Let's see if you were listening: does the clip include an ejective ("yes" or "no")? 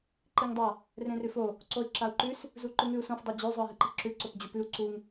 no